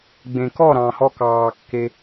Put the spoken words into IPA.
ɡ͡b ẽ˨ k ɔ˦˨ ɾ ɑ̃˨ h ɔ˧ k ɑː˧ kː e˦

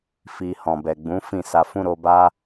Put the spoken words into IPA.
f i˧ h ɔ̃˨ b ɛ˨ ɡ͡b ũ˨˦ f ĩ˦˨ s a˧ f ũ˦ ɾ o˧ b a˦

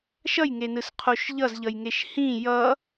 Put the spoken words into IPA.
ʃ ʌ j ŋ e n ɯ s qʰ o ʃ ʎ ʌ z ʎ ʌ j ŋ e ʃ h ĩ j ʌ

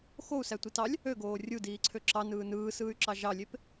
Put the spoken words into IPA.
x o u̯ s æ tʷ i t ɑ lʲ | ø ɡ oː rʲ u d iː ǀʰ ø ǁ ɑ n ɯː n ɯː s ɯː y̯ ǁ ɑ ʒ ɑ lʲ e p

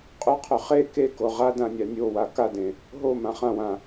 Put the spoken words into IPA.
qʼ ʏ qʰ ʏ χ e k e k o ʁ a d ã nʲ a nʲ o w a k a d ẽ | ɦ o m ã χ ã w ã

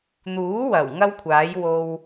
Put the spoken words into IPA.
n̪ uː˨˥ w ɐ˨˩ w ŋ ɐ˥ w kʷʰ aː˨˥ j w o˧ w

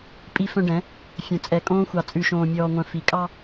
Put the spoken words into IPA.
pʼ i˦ f œ̃˦ ɖ ɛ̃˨˦ | fʲ œ̃˨ t͡sʼ ɛ˨ kʼ õː˦ xʷ ɑ˨ t͡sʼ ʉ˨ ʃ õː˨ mʲ ɔː˨ ŋʷ œ̃˨ f i˨ kʼ ɑ˦

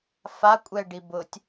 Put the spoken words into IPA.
f a kʷʼ ɛ ɖ i b ʊ tʲ

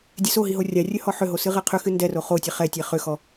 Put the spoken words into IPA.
dʲ ɛ s o ɦ i ɦ o rʲ a rʲ ɵ h ɔ ħ ʏ ɦ o s ɨ ʁ ɛ qʰ ʏ x ɨ n d ɛ r o χ o tʲ ɛ χ ɛ tʲ ɛ χ ʏ x ɔ

